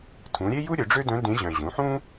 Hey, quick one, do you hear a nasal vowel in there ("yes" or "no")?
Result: yes